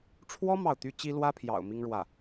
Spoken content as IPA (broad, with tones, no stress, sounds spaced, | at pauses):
ʈ͡ʂʰ w ɔ˥ m ɑ˥˩ ʊ̯ t̪ y˥ t͡ɕ i˥ l w ä˥ pʰ j ɑ̰˨˩ ʊ̯ m i˥ ŋ ɻ w ä˥˩